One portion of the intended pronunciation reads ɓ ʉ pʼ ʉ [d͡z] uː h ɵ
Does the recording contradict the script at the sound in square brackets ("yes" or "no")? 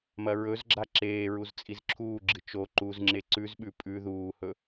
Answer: yes